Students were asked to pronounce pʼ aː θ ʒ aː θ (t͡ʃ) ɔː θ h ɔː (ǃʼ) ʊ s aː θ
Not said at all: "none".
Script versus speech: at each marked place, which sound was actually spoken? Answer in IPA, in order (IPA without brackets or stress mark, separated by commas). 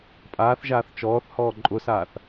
t͡ʃ, ǃʼ